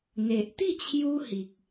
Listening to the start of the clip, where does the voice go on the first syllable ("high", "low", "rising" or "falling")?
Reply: low